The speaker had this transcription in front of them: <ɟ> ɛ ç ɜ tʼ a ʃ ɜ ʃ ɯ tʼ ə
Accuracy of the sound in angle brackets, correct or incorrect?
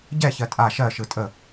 correct